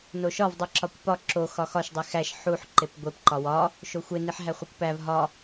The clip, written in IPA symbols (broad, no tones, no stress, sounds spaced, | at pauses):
n o ʃ ɒ v dˤ i ǁ ɒ kʷ p ɒ ǁ o x ɒ x ɒ ʃ dˤ i x æ ʃ ħ u ħ ǃ e p ɡʷ e p ǃ ɒ w ɒ | ʃ o xʷ e n i ħ ɦ æ χʷ i kʷ p æ v ɦ ɒ